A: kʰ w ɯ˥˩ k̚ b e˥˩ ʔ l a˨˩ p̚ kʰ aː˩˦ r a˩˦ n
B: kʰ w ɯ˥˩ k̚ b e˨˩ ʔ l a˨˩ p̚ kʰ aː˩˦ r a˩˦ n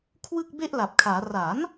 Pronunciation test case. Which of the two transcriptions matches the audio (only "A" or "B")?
A